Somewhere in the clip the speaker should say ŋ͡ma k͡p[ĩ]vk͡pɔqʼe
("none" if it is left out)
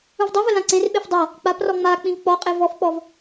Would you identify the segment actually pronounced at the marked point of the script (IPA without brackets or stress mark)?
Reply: ĩ